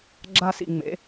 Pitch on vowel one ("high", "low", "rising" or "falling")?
high